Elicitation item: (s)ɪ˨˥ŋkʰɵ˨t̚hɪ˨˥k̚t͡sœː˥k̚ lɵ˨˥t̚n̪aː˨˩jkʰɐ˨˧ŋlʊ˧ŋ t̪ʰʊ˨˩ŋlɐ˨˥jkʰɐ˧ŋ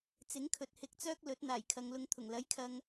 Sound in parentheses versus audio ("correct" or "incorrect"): incorrect